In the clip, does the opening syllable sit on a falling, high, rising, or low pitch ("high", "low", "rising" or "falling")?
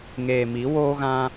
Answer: low